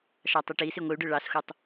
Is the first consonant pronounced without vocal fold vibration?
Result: yes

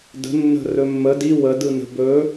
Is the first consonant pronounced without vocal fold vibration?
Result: no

